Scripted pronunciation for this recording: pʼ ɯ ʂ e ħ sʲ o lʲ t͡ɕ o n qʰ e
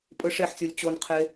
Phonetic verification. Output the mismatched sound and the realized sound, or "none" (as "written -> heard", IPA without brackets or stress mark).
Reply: none